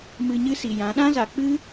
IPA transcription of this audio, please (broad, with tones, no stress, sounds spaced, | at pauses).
m ɨ˧ ɲ ɨ˦ s i˨ j ã˨˦ ɗ ã˦ z a˨ k͡p ɨ˦